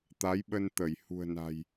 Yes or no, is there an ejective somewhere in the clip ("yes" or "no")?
no